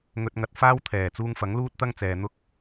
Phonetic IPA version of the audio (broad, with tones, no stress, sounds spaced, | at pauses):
ŋ ɵ˧ t̚ ŋ ɐ˧ t̚ f aː˥ w t̪ʰ ɛː˨˩ t͡s uː˧ ŋ f ɐ˨˥ ŋ l uː˥ t̚ t̪ ɐ˥ ŋ t͡s ɛː˨ n̪ ʊ˥ k̚